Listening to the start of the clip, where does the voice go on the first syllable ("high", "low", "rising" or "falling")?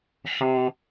high